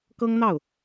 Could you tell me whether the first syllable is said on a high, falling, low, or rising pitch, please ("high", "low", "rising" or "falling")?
high